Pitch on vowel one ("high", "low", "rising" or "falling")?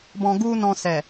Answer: low